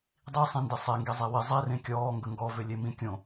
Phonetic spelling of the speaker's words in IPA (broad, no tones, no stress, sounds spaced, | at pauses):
dˤ i sˤ ĩ n d ɪ sˤ e ŋ ɡ i zˤ i w ɪ zˤ i r ẽ kʲ ɔː ŋ ɡ ə ŋ ɡ ɔ v ʏ lʲ e m ĩ kʲ õ